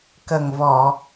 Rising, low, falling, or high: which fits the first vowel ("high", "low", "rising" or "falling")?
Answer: low